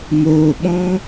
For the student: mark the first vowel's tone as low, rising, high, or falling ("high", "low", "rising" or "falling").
low